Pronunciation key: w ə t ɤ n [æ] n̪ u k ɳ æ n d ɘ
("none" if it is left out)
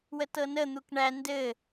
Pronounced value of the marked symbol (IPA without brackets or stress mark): ə